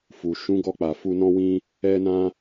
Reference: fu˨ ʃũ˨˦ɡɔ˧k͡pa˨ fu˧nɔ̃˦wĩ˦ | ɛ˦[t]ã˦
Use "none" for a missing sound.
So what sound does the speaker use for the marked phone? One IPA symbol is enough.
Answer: n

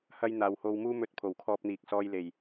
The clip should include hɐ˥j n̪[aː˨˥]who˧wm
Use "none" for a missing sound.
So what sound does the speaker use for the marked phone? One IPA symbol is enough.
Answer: aː˨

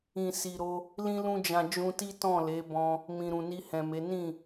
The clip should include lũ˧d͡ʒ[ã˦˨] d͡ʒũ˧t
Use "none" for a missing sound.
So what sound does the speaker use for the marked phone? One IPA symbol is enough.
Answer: ã˨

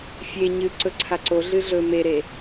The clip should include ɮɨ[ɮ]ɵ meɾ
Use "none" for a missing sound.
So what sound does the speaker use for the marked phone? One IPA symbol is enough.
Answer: ɮ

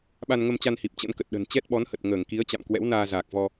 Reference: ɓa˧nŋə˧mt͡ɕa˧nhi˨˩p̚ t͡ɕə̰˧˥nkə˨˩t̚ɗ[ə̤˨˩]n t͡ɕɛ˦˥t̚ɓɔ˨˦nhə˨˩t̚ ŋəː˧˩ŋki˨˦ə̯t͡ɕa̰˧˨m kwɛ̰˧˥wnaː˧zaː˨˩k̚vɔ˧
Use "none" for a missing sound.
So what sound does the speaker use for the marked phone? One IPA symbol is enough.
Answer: ə̤˨˩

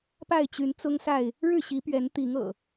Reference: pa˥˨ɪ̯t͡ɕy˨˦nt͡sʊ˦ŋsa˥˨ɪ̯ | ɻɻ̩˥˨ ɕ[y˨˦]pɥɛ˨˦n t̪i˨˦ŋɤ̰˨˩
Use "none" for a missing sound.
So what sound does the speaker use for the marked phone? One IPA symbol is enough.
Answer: i˨˦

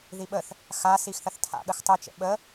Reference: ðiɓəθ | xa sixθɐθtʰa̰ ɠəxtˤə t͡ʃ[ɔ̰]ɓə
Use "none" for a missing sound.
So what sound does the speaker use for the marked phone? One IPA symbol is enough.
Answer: ə̰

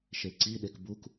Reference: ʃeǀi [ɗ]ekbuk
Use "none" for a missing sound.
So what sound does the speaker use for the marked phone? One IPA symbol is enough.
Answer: ɗ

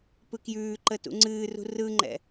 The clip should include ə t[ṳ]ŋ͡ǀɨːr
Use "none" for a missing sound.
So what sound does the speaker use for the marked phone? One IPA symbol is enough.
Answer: ṵ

